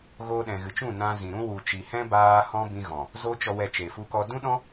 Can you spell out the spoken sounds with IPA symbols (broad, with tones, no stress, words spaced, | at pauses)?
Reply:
ɣoː˧ɗɛ̃˨ɣɨ˨t͡ʃũ˦˨ nã˧zĩ˨ ɾũ˦wu˨ t͡ʃi˨hɛ̃˦baː˧ hɔ̃˦bĩ˧ɣɔ̃˨ | zo˦t͡ʃɔ˧wɛ˧ t͡ʃe˨fu˧kɔ˧ dũ˦ɗɔ̃˦